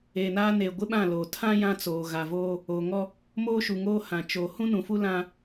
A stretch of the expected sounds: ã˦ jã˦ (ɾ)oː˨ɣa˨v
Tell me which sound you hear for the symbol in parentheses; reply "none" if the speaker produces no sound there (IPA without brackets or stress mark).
t͡s